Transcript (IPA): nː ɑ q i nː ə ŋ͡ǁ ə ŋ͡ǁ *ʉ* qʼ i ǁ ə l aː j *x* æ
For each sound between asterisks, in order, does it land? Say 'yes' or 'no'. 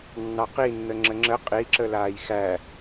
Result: no, yes

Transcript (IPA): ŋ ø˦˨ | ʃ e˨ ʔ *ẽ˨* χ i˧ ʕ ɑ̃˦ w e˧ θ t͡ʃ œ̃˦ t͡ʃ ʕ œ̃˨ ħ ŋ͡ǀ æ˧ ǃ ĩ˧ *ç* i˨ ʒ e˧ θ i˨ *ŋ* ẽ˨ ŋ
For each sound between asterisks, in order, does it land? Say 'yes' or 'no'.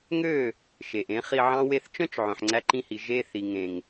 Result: no, no, yes

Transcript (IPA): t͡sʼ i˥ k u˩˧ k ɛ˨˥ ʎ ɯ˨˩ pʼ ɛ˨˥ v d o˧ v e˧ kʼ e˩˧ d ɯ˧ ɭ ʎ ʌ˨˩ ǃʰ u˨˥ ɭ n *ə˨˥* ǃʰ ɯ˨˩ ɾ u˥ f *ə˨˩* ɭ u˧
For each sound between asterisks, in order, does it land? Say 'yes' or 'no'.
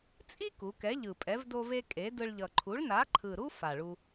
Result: no, no

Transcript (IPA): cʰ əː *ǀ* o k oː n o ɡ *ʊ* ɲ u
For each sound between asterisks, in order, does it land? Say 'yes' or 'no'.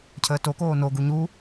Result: no, no

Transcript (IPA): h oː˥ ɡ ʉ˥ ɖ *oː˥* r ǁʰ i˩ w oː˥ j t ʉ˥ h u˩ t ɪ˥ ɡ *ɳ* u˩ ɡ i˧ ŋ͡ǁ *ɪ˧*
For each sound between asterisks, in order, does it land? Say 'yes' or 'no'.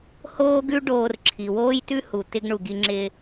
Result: no, yes, no

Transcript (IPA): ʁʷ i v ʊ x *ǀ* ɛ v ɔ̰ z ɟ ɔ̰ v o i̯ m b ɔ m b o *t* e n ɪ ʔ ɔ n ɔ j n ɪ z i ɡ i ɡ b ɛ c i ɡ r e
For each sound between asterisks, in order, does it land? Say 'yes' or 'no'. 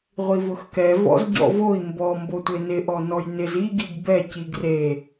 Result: no, no

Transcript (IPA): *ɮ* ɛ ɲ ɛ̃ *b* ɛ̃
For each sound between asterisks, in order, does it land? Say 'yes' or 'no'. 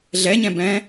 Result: yes, yes

